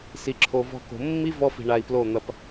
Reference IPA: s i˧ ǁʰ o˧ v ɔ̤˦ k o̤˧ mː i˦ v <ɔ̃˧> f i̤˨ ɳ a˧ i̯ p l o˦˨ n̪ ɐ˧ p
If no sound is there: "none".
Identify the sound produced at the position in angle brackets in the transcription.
ɔ˧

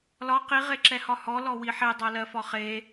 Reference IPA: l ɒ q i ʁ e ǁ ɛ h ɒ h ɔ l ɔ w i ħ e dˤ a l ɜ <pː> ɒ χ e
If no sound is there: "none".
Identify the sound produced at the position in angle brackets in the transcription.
f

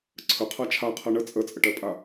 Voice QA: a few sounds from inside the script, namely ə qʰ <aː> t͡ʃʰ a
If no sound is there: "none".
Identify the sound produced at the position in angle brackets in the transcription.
a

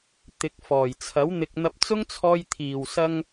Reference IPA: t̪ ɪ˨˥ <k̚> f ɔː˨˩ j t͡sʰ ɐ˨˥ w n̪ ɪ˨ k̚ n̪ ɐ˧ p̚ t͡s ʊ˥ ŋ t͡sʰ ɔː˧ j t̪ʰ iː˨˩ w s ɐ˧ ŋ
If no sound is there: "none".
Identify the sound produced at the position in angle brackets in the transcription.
k̚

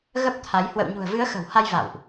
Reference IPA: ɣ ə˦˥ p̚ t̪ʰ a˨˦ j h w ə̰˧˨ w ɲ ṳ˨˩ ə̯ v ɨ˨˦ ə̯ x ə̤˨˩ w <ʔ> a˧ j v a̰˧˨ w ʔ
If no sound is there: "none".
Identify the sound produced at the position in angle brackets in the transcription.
h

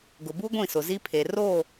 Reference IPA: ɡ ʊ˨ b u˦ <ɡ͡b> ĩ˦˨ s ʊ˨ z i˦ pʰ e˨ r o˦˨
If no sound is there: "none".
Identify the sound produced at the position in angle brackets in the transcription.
ɡʷ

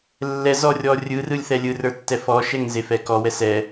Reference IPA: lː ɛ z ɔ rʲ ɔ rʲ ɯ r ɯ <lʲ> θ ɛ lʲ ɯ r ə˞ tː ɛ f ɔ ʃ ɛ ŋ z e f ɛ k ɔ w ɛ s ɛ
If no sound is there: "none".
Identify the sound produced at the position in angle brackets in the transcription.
lʲ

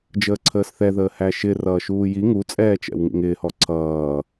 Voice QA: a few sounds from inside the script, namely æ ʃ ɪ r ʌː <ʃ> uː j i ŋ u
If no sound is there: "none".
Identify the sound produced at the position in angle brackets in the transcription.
ʃ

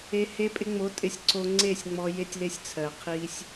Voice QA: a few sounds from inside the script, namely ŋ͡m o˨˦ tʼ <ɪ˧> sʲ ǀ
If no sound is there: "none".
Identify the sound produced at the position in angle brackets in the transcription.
ɪ˧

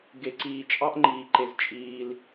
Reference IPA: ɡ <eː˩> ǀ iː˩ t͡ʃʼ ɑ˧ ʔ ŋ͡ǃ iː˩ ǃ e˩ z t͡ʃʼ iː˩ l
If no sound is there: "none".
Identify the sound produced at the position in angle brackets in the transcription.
e˩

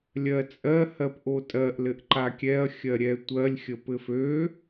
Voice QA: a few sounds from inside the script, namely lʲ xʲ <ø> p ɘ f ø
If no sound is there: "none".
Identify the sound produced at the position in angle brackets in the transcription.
ə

